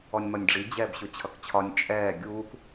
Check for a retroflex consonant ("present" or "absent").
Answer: present